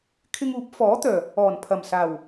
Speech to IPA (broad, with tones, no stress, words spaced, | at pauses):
kʰɪ˧ŋuː˨˥p̚fɔː˨˥ t̪œː˨˩ | ɔː˨˩npʰɐ˨˩msaː˨˩w